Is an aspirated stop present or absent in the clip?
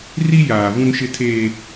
present